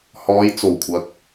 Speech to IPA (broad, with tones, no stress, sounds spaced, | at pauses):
h ɔː˨˧ j t͡s o˨˩ w kʷʰ ɐ˨ k̚